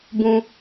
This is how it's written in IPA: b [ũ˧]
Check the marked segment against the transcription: correct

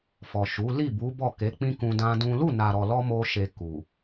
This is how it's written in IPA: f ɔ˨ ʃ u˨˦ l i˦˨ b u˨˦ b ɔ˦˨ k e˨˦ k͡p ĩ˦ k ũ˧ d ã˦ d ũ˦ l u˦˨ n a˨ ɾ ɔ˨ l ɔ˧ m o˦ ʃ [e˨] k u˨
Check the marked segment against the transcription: incorrect: e˧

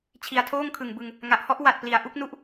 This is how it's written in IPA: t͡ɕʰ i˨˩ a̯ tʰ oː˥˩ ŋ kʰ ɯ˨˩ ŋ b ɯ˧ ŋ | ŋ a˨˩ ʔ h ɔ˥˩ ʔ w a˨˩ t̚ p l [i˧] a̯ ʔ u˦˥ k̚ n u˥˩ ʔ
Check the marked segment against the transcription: incorrect: i˩˦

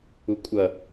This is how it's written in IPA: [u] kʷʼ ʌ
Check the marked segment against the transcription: correct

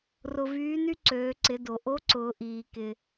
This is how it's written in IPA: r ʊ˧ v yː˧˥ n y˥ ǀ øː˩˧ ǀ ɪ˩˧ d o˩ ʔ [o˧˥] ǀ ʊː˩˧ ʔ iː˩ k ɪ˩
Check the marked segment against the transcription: correct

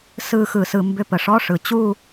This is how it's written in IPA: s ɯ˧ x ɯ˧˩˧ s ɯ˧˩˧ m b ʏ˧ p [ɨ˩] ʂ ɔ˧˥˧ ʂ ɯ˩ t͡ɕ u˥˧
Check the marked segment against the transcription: incorrect: ə˩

